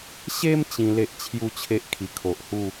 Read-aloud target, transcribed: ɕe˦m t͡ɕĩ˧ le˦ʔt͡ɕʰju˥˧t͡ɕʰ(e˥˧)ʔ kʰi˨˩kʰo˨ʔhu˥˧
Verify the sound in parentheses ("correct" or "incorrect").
incorrect